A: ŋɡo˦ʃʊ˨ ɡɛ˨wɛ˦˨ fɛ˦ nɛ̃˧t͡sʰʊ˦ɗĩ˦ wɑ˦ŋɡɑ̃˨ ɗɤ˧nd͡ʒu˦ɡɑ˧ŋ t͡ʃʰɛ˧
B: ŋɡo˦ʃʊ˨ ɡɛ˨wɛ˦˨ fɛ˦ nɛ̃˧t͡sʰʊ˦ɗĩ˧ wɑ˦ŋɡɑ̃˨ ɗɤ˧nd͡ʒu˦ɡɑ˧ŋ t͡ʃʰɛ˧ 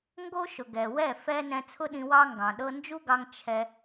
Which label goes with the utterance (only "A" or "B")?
B